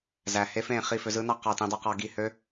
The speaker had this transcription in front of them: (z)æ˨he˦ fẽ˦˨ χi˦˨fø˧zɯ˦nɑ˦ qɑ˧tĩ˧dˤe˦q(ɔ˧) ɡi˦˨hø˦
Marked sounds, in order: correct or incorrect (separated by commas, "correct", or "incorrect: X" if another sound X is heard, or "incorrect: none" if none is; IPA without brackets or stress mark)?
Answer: correct, incorrect: ɑ˧